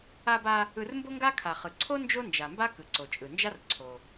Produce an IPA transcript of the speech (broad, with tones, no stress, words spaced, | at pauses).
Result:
a˧ba˧ | ɯ˧rmbo˥ŋɡa˥ kʰa˩χɯ˩ǀʰo˥ nd͡ʒo˥nd͡ʒa˩mba˥ kɯ˩ǀo˩t͡ʃʼɯ˩nd͡ʒa˥r ǀʰo˩